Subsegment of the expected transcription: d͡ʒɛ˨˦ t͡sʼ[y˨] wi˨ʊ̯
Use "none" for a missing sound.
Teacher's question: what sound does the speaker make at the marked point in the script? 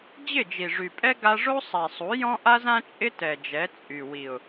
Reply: y˨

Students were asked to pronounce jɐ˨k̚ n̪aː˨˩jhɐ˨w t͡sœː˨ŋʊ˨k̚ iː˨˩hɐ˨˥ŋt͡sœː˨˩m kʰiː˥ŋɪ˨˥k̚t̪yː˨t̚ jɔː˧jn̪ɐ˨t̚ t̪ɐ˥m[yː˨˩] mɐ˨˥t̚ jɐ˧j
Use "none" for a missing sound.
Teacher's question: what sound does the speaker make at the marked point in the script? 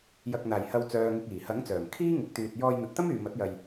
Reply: yː˨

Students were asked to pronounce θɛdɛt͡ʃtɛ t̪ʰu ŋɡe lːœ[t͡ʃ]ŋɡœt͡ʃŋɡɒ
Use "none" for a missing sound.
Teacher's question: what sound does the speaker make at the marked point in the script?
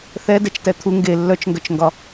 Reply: t͡ʃ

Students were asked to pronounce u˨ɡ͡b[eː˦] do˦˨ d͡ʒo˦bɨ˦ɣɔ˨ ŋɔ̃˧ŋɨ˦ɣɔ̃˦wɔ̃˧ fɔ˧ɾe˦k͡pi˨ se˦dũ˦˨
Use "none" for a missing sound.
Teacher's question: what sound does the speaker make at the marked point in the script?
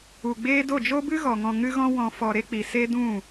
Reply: eː˦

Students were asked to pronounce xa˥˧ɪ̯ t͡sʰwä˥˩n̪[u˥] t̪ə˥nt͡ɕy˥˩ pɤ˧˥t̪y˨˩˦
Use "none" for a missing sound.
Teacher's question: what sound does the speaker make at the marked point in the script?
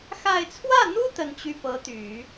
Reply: u˥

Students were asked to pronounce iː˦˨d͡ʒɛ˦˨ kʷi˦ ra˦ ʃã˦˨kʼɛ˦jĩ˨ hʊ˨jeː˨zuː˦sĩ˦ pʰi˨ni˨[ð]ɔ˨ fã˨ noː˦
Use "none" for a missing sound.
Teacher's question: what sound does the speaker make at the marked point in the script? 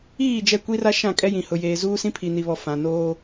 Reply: β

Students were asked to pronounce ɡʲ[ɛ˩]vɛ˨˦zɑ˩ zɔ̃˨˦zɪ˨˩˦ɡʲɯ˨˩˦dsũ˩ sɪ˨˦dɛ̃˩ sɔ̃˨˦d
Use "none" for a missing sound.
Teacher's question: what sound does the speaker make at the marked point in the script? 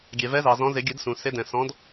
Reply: ɛ˩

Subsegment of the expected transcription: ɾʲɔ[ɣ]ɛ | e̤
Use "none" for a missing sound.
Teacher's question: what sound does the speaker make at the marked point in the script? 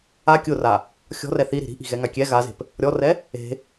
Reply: r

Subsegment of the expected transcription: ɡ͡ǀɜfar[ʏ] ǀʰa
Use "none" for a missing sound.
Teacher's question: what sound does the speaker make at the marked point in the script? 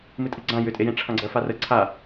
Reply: ə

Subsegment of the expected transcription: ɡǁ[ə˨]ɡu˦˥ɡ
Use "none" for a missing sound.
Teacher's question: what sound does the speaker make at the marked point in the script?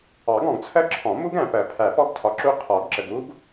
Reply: ə˨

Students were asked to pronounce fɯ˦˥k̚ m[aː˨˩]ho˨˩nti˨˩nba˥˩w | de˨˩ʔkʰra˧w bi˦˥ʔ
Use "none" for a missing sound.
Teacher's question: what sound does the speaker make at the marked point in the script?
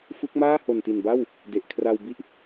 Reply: aː˥˩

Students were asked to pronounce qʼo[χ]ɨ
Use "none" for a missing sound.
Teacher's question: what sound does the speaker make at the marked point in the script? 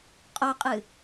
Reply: qʼ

